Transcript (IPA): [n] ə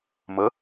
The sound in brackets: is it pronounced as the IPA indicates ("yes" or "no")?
no